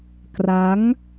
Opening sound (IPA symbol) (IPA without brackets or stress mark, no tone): k